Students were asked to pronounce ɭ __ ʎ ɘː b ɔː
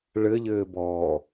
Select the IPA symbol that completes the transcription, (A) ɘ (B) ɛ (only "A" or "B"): A